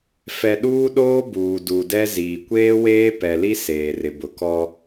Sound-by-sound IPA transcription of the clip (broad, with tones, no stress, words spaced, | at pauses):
fɛ˨ ɗuː˦ɗoː˦buː˨ du˨dɛ˦ ziː˨ kʷeː˦weː˦pɛ˨li˦ seː˨rɪ˨bʊ˨kɔ˦